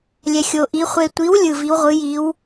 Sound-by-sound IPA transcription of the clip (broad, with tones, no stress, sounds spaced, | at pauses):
lʲ ɛ˨ xʲ o˨ ʔ i˨˦ χʷ e˨ tʷ i˨˦ w lʲ ɯ˨ v i˨˦ w ʁʷ ɯ˨˦ j i˨˦ w